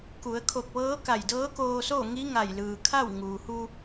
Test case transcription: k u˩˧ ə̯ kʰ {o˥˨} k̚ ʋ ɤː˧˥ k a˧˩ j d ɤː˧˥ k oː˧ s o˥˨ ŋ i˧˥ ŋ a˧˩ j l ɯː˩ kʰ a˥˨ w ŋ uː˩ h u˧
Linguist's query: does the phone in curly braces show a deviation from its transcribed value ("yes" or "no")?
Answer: yes